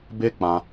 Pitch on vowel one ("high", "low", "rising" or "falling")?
high